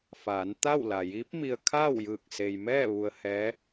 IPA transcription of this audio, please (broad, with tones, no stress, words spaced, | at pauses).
faː˩˧nt̪a˥˨w la˩jiː˧˥p̚mi˧ə̯ kʰa˥˨wjɯː˧˩k̚ se˩jmɛː˥˨ ʋu˧ə̯hɛː˧˥